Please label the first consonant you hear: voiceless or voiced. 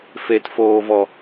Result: voiceless